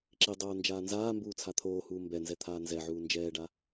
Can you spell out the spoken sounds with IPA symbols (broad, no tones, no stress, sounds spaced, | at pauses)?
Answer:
ǁ i dˤ oː n d͡ʒ aː n z aː m b uː t͡sʰ a t̪ʰ oː h uː m b ɛ n z ɛ t̪ʰ aː n z ɛ ʕ uː n d͡ʒ ɛː ɖ a